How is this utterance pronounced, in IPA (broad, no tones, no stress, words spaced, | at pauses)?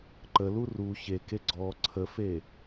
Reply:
ǃəlu ru çeke ɡ͡ǀɔ ǀʰəfe